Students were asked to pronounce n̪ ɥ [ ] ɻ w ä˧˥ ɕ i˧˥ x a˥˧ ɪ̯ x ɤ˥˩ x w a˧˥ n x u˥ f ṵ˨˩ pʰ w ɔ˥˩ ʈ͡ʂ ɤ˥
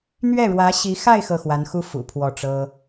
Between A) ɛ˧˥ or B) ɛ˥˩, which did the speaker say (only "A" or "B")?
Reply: B